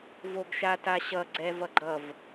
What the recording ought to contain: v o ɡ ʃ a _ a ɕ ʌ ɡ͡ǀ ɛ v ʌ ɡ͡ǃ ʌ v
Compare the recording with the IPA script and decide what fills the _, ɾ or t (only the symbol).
t